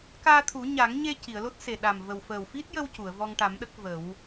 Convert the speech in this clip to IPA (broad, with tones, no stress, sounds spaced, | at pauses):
k aː˧ t̪ʰ u˨˩˦ ɲ a˨˩˦ ŋ ɲ e˧ c i˨˩˨ ə̯ l o˦˥ t̚ s e˨˩ ɗ a˨˩ m v ə˨˩ w f əː˨˩ w f i˦˥ t̚ j ə˧ w c u˨˩˨ ə̯ v ɔ˧ ŋ ʈ a˨˩˦ m ɗ ə˦˥ k̚ v ə˨˩˦ w